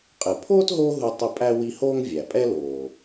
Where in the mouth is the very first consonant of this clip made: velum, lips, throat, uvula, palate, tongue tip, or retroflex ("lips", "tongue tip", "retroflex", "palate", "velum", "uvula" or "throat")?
uvula